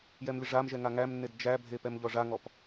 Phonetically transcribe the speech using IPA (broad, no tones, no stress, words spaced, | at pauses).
jɛmlʲəʐamʒɛ ŋaŋæmnːed d͡ʒæbʱe pɛmʎɔʐaŋɔp